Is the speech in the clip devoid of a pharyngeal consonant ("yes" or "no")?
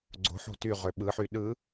no